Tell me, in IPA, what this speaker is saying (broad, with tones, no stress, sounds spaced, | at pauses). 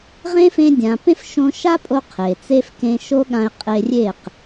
ʁ ẽ˦ f ẽ˧ dʲ ã˨ p ẽ˦ f ʃ õ˧ ʃ a˦ pʼ o˧ qʰ e˨ t͡s e˦ f k ẽ˧ ʃ o˦ ɠ ã˧ ɪ̯ qʼ e˧ rʲ e˦˨ q